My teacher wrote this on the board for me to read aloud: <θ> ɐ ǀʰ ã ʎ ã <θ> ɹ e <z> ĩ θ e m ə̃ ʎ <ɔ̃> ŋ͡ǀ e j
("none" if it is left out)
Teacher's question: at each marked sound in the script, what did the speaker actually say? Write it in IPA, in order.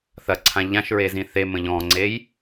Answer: θ, ʃ, z, ɔ̃

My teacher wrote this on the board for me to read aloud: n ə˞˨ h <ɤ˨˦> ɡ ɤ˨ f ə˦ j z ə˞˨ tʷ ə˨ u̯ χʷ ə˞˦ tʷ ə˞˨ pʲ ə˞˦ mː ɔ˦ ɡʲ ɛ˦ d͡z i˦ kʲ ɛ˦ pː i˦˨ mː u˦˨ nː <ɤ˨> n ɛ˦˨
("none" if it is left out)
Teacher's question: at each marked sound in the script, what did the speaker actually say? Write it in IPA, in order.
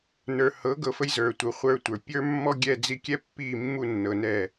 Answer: ɤ˨˦, ɤ˨

